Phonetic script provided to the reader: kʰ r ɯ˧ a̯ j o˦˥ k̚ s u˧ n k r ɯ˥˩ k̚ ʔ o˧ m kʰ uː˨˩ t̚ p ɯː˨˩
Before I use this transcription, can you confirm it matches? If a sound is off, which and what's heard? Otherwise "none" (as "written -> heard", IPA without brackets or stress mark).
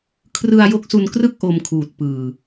none